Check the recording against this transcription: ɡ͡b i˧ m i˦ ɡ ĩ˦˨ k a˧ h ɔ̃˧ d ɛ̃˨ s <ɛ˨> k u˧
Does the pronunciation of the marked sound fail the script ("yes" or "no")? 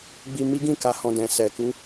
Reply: no